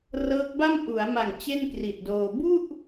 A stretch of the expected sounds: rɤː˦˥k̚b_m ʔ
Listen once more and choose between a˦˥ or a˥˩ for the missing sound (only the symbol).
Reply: a˥˩